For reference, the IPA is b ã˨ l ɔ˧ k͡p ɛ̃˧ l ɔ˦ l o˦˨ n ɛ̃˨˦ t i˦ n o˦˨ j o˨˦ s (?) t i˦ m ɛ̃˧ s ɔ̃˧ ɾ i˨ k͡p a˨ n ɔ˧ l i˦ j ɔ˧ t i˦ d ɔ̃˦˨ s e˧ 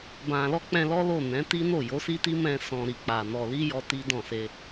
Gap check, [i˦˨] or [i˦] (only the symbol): i˦